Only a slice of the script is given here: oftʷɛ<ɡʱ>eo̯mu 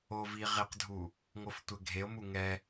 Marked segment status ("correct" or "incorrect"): correct